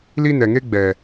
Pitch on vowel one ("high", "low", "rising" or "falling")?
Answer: high